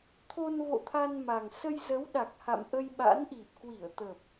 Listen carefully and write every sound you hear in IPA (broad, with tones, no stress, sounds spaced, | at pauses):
t̪ʰ o˧ n v o̰˧˨ t̪ʰ a˧ n m a˨˩ ŋ s ə˧ j z ə˨˦ w ɗ a˨˩ k̚ h a̰˧˨ m ʔ ə˧ j ɓ a̰˧˥ n ʔ i˨˩ p̚ k w i˧˩ ə̯ t̪ ə˨˩ p̚